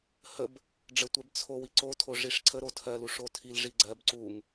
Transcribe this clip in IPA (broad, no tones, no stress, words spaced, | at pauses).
həb | ɖ͡ʐətʷɛb t͡sʰow iǀotʰo ʐiʂǀʰə ɾotʰɜlu ʂotʰil ʐiɡ͡ǀɜb ǀuŋ